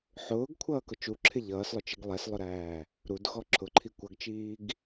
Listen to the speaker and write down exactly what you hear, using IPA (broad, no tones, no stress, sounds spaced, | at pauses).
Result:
ħ ʊː ɡ kʷʰ ʌː k ʊ t͡ʃ u ǁʰ ɪ ʎ ʌː s lˠ ʊ t͡ʃ i ɡ lˠ ɛ s lˠ ʊ ɾ æː | ɾ u d x ɔ ǁʰ ʊ ǃʰ i kʷ ʌ ɡ t͡ʃ iː ɡ